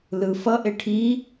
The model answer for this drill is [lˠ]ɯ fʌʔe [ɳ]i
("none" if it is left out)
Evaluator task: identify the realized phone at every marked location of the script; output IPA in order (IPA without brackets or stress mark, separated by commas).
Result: l, ʈʰ